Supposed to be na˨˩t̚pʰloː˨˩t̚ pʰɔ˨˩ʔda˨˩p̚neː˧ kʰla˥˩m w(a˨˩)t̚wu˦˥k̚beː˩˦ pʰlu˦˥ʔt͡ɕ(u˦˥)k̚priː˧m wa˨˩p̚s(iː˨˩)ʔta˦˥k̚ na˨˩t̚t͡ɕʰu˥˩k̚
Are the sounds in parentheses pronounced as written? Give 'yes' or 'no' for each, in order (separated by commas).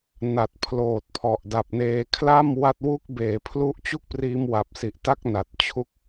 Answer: no, no, no